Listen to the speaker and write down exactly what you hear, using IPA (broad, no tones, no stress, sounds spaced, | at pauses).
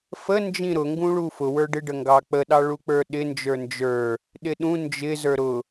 f ə n d͡ʒ ĩ ɾ ʊ ŋ ɡ ũ ɭ u f ʊ w ə˞ ɖ ɪ ɖ ə ŋ ɡ ɑ k͡p ə ɗ ɑ ɭ u k͡p ə˞ ɗ ɪ n d͡ʒ ə˞ n d͡ʒ ə˞ | ɗ ɪ ɗ ũ n d͡ʒ ɪ z ə˞ ɾ ʊ